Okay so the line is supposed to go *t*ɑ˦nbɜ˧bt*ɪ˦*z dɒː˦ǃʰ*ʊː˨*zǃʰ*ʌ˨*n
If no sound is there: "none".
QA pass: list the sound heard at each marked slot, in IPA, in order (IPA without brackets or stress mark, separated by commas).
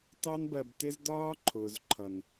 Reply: t, ɪ˦, ʊː˨, ʌ˨